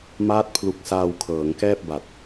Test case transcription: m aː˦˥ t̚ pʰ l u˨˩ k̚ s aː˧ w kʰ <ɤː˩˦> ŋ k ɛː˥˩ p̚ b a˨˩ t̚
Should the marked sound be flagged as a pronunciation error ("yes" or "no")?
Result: no